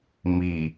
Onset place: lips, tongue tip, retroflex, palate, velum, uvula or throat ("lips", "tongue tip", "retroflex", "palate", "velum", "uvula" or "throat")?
lips